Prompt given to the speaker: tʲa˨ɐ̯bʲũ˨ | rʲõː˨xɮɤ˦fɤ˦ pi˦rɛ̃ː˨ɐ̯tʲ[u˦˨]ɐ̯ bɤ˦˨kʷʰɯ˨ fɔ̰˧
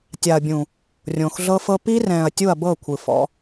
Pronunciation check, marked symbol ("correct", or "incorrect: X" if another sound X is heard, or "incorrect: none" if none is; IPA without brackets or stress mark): correct